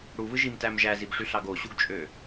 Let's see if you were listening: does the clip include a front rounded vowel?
yes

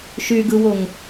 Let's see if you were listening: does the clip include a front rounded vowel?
yes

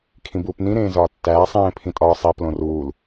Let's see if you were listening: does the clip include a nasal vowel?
yes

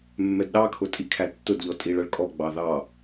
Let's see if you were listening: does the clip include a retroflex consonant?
yes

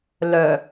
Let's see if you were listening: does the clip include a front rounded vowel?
yes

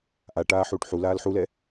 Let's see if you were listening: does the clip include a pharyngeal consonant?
yes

